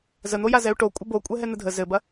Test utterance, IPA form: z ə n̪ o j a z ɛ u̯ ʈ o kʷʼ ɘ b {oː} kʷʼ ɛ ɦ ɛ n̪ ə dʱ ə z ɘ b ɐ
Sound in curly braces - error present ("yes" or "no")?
yes